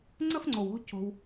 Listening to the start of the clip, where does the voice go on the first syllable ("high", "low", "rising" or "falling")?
high